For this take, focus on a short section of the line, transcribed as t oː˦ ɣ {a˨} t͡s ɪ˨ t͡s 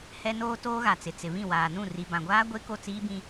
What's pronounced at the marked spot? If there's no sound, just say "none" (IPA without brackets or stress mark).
a˨